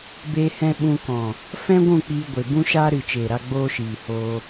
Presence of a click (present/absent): absent